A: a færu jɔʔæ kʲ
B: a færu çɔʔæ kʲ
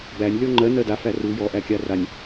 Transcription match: A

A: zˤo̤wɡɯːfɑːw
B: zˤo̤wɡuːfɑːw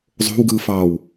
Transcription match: A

